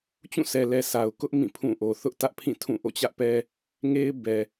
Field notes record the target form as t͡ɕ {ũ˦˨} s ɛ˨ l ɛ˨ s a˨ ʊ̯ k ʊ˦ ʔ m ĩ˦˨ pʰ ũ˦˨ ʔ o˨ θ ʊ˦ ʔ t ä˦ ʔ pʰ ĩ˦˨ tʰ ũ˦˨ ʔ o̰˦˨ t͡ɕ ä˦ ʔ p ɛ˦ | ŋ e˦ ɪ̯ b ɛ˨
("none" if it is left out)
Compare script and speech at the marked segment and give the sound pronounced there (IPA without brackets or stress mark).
ũ˦˨